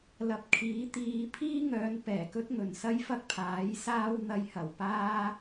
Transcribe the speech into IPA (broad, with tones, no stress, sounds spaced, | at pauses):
l ɐ˧ p̚ kʰ iː˨˥ t̪ iː˧ pʰ iː˥ ŋ œː˨˧ n p ɛː˨˩ k ɵ˥ t̚ ŋ ɵ˨˩ n s ɐ˥ j f ɐ˥ k̚ pʰ aː˨˥ j s aː˥ w n̪ ɐ˧ j h ɐ˨˩ w p aː˥